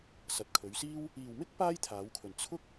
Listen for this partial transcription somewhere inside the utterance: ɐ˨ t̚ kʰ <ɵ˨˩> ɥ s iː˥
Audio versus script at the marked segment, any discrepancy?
yes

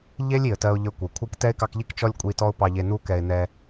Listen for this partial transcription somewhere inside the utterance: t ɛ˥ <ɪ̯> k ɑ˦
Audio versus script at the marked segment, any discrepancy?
no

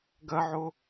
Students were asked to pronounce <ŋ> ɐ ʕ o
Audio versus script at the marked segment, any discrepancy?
yes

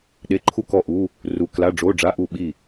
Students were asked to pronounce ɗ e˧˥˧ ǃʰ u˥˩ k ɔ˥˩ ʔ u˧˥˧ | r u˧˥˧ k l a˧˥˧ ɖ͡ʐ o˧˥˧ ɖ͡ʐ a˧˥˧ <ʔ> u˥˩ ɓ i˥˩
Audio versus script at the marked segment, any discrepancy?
no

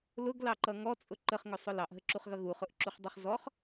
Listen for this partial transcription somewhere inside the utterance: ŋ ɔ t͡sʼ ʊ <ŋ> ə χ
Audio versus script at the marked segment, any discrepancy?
yes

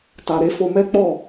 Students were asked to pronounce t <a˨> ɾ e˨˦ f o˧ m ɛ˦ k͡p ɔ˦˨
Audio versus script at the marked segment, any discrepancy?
no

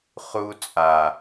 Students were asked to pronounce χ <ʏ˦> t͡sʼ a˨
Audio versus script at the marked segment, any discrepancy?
yes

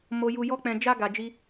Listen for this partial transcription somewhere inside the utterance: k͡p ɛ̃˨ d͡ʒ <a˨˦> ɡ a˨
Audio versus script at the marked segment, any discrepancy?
yes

